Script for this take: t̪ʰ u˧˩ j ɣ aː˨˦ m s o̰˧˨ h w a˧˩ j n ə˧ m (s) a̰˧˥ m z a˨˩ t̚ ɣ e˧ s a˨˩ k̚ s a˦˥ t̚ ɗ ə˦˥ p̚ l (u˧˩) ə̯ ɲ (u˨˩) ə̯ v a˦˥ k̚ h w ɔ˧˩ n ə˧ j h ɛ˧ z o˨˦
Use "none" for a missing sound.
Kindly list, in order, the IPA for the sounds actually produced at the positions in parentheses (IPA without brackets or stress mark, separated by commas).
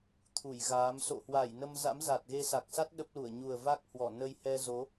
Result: z, u˧˩, u˨˩